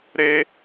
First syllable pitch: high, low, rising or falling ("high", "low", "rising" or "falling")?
high